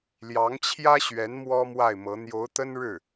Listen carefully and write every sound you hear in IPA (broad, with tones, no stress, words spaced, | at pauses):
ljɑ˧˥ŋt͡ɕʰjä˥ɕɥɛ˧˥n mwɔ˥mwa˥˩ɪ̯mɤ˧˥ n̪jo˧˥ʊ̯t̪ə˥nɻɻ̩˥˩